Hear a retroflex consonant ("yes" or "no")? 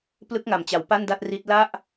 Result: no